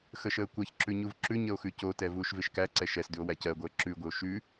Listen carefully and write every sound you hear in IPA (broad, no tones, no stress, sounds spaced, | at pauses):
x ə ʃ əː kʷ ɜ ç ǁ ʉ ɲ u v ǁ ʉ ɲ ə o̯ x ʉ c o t ɛ v uː ʃ v ɪ ʃ k æ ǀ ɛ ʃ ɛ s d ʉ o̯ w æ c ɜ ɡʷ əː ǁ ʉ ɡʷ ɪ o̯ ʃ ʉ